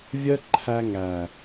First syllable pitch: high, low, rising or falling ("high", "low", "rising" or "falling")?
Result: high